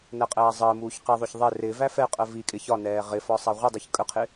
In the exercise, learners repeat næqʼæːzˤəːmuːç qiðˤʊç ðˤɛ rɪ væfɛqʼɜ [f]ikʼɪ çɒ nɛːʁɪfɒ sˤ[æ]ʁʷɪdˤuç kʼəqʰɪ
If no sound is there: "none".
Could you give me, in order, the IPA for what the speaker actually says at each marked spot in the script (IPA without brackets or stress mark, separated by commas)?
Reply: v, æ